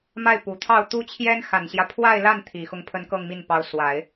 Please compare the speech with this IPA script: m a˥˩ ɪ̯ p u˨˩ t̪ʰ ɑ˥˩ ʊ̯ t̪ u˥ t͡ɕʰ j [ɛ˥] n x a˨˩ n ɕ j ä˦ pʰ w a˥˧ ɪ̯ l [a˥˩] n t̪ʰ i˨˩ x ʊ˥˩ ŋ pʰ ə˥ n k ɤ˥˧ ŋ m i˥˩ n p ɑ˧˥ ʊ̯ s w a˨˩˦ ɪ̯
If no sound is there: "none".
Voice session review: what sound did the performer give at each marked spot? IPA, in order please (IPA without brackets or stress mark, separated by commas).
ɛ˥, a˥˩